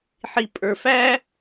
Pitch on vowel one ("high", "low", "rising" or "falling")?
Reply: low